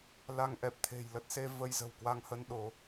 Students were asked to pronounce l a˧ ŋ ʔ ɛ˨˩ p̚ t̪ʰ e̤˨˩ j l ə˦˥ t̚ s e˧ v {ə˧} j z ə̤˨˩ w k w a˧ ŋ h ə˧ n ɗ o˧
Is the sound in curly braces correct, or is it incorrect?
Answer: correct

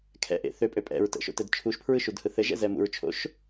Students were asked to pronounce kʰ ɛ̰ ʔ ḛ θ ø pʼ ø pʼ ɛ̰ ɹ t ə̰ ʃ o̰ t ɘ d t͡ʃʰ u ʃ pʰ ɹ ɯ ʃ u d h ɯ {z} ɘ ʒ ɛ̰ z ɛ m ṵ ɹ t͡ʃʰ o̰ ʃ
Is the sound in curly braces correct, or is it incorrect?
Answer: incorrect: θ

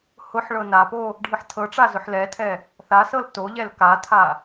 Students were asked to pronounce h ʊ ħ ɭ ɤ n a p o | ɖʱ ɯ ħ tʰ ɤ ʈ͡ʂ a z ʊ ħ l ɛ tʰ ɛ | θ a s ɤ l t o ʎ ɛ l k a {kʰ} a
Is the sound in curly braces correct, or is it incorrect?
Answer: incorrect: tʰ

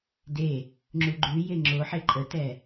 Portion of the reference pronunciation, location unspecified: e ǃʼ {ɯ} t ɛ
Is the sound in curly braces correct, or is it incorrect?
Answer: incorrect: ə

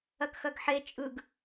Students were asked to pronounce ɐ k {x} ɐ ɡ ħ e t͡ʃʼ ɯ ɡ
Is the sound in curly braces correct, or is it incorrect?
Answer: correct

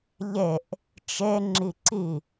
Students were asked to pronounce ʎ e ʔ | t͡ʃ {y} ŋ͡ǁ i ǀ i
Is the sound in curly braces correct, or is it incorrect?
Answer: incorrect: e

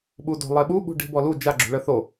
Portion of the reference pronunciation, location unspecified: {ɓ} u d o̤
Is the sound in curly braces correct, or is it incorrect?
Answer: correct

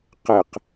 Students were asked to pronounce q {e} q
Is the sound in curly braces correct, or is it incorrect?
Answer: correct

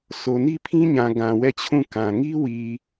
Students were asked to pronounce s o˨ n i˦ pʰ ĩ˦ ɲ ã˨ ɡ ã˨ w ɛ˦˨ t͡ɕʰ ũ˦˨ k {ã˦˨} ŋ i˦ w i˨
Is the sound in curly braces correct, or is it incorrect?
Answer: incorrect: ã˨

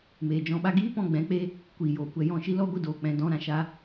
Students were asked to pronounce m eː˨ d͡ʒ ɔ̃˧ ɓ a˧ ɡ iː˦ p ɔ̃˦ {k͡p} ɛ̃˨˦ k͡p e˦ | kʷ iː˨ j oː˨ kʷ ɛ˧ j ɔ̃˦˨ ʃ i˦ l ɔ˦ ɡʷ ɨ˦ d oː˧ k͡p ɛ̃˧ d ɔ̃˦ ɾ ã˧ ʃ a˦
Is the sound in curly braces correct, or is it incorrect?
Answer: incorrect: ɡ͡b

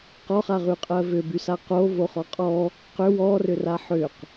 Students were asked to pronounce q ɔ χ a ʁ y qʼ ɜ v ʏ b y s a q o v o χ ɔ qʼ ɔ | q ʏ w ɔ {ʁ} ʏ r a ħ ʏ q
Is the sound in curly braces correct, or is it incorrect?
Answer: incorrect: r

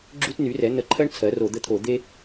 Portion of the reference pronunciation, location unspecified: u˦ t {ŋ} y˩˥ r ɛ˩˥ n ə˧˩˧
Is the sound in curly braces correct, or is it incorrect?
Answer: incorrect: n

